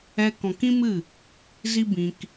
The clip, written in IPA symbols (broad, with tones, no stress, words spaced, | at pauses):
ɛ˧ kɔ̃˨kĩ˦mɨ˦˨ | zi˦bĩ˧k